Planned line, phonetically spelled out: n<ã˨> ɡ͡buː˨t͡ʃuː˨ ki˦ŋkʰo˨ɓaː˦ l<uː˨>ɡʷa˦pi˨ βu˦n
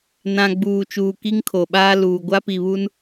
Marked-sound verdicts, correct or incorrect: correct, correct

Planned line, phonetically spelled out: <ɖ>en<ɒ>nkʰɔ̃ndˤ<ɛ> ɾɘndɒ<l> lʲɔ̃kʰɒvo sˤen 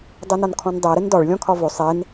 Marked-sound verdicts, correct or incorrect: incorrect: dˤ, correct, correct, incorrect: ɭ

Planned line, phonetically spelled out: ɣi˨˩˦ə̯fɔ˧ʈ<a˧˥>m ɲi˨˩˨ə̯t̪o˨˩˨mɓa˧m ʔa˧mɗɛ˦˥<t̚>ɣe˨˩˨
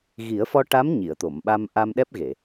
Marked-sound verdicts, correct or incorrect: correct, incorrect: p̚

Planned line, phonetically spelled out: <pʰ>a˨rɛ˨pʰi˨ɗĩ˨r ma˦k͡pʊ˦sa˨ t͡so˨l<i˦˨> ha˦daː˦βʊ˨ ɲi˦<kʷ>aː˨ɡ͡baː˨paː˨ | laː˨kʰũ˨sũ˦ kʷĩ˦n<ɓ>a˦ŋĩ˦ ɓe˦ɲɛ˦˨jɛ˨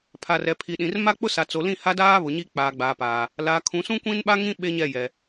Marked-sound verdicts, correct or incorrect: correct, incorrect: ĩ˦˨, incorrect: k͡p, correct

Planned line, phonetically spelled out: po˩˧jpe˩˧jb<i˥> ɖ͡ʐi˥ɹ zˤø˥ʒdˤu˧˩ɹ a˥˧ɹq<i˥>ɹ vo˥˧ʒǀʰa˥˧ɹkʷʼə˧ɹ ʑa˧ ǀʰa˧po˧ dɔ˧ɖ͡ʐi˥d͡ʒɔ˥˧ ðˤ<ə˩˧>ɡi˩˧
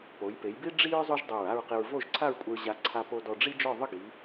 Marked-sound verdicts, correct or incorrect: correct, incorrect: i˧, incorrect: ə˥˧

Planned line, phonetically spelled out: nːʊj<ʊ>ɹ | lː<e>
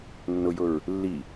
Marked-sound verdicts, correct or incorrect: correct, incorrect: i

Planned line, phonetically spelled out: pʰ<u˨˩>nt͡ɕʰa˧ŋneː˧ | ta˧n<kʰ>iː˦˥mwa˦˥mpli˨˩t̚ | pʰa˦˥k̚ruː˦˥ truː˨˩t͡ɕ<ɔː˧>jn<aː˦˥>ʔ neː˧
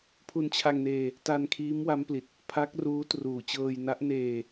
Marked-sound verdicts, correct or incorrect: incorrect: u˧, correct, incorrect: ɤː˧, incorrect: a˦˥

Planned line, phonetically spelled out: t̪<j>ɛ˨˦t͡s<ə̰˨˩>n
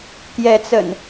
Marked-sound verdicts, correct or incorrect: correct, correct

